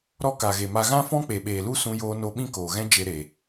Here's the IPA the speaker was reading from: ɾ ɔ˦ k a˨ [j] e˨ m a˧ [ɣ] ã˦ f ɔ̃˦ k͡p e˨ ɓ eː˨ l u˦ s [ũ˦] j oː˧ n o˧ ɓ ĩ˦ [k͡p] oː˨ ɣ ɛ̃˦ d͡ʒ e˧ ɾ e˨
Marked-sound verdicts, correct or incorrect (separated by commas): incorrect, correct, incorrect, incorrect